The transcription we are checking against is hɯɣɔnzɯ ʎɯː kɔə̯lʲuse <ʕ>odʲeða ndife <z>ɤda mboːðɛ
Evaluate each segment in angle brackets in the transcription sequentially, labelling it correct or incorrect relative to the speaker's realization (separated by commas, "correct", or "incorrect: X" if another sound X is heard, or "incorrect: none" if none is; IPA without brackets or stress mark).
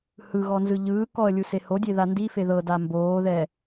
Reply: incorrect: h, incorrect: ð